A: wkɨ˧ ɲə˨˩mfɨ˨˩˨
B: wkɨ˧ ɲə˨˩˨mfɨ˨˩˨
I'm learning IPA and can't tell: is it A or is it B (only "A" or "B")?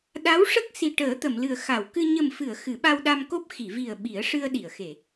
A